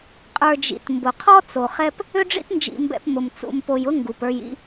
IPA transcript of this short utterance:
qʼ ə˞˧ d͡ʒ ḭ˨ t m b ʊ˨ qʰ ɔ˦ t͡s o˨ χ ɛ˦ p | ʏ˦ ɖ͡ʐ ḭ˦ t n d͡ʒ ḭ˧ m b ɛ̰˧ p m ʊ˨ m t͡s ṵ˨ m p o˨ j ʊ˦ ŋ ɡ u˨ p ə˞˧ j ḭ˦

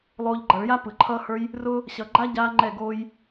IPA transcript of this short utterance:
lˠ oː˦ ʎ ɡ͡ǃ ʌ˧ ɭ j a˦ p ɯ˨ ǃʰ ʌː˧ h ə˞˧ j | r ʊː˦ | ɕ ʌ˧ ɡ͡ǃ a˦ ɟ aː˦ ŋ͡ǃ ɛ˦˨ ɡ oː˦ j

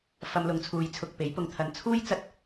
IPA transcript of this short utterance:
f ɐ˧ m l ʊ˨˧ ŋ t͡sʰ uː˨˧ j t͡sʰ ʊ˨ k̚ p e˨˥ j p ʊ˧ ŋ t̪ʰ ɐ˧ n t͡sʰ uː˥ j t͡s ɐ˧ t̚

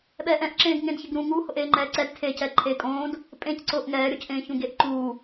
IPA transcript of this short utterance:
ɓ ɛː ʔ ɛ̃ ʔ ǁ ẽː ɡ ŋ ẽ d ç ɪ ɡ ɾ ũ ŋ u h ʊ ʔ eː ŋ͡ǃ ɛː ǀ ɛ d tʰ e c ɛ ǃʰ eː kʼ õː d | pʼ ẽ c ǀ ʊː ʔ ŋ ɛː ɾʲ o c ʔ ẽː ç ũ ɡ e ʔ ǃ uː

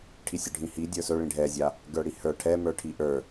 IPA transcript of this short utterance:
ʈʰ i sʲ ə˞ ɖʱ ĩ h i dʲ ə˞ s ɵ ɭ ĩ ɖʱ ɛ zʲ a | ɡ ə˞ ɽ i h ə˞ ʈʰ ɛ m ə˞ ʈʰ i ʔ ə˞

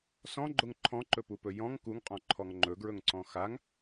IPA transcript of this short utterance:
s ɔ̃ ɡ͡ǃ ʊ ŋ ǃʰ ɔ̃ ǃ ɵ p u p ɵ j ɔ̃ ŋ k u ŋ qʼ ɔ̃ ǃʰ ɔ ŋ ŋ͡ǃ ɵ ɡ ɹ ɵ ŋ ǀ ɔ̃ x a ŋ

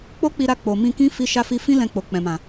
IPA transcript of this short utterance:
k͡p o˦ k͡p i˧ ɾ a˧ k͡p o˨ m ĩ˧ k ĩ˦ f i˦ ʃ a˦ f i˦ f ĩ˦ l ɛ̃˧ k͡p o˨ k͡p ɛ̃˨ m ã˨

